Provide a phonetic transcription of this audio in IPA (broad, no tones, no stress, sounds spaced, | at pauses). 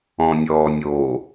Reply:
ɔ̃ nʲ ɔː nʲ o